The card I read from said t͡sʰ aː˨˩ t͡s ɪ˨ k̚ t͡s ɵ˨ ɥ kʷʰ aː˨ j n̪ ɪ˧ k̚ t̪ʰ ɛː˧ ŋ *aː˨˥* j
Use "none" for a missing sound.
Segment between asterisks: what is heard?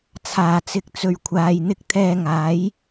aː˨˥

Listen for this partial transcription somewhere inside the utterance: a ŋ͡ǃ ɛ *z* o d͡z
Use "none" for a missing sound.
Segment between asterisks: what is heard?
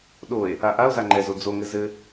z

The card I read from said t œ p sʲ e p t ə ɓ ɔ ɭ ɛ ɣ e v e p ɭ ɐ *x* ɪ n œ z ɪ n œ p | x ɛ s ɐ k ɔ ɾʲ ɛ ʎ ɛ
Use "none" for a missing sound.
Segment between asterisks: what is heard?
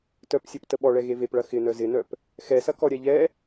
x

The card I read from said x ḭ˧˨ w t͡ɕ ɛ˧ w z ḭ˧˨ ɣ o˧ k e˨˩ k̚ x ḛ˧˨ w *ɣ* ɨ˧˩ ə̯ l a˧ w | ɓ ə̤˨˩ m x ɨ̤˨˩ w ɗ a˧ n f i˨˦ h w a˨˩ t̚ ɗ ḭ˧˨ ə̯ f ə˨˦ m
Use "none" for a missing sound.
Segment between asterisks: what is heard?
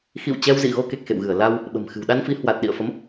ɣ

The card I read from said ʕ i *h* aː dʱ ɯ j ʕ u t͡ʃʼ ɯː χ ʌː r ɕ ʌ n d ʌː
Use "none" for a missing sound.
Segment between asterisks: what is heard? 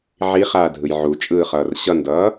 χ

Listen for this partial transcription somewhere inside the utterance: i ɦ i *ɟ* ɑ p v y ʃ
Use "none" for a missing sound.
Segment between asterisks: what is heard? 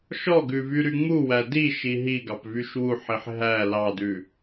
ɡ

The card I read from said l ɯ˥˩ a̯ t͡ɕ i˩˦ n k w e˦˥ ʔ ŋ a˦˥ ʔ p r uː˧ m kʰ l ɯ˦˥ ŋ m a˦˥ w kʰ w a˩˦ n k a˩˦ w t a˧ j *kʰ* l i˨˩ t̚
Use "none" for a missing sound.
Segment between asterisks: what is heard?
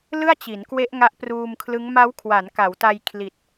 kʰ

